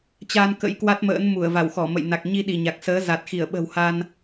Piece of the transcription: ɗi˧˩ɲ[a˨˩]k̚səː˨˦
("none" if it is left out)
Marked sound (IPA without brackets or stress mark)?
a˨˩